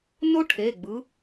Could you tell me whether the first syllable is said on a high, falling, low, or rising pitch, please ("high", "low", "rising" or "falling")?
high